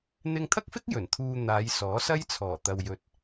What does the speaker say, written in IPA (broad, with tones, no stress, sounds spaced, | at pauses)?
n̪ ɪ˧ ŋ t̪ʰ ɐ˥ k̚ f ɪ˥ k̚ j ɵ˨˩ n t̪ʰ uː˧ n̪ aː˨˧ j s ɔː˨˥ s ɐ˥ j t͡sʰ ɔː˨˩ t̪ ɐ˧ w j ɵ˧ t̚